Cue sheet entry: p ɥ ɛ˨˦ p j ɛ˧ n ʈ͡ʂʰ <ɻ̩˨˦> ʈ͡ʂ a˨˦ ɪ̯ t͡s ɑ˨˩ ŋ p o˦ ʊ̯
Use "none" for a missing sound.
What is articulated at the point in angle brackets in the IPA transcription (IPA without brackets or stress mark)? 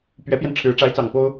ɻ̩˨˦